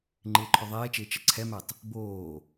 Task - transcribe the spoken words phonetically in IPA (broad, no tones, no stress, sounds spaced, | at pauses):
ŋ͡ǃ ɪː ǃʰ œ ðˤ eː t͡ʃ ɪː t͡ʃ ə ǀʰ ɛ m ɛ tˤ | b oː